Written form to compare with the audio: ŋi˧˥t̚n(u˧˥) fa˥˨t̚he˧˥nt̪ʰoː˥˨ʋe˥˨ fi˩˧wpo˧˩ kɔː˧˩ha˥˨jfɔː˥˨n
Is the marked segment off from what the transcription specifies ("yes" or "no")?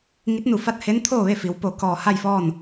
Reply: yes